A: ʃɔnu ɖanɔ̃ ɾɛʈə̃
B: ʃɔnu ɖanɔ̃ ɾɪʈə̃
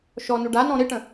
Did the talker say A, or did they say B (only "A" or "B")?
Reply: B